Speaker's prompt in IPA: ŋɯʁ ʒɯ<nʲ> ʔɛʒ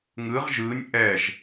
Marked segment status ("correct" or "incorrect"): correct